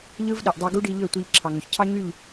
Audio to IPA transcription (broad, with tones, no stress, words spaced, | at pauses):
ʎɯ˦v ɗi˨ʔdˤy˧ ɡu˦ɖi˧ ʎø˦˨tʷi˧ʎ ǁʰɑ˨ŋø˨çcʰɑ˦ ɲy˦˨ʎ